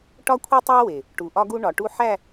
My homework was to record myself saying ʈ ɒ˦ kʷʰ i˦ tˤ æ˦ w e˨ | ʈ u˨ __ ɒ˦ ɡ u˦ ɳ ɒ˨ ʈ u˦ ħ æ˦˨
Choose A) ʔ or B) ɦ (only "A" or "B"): A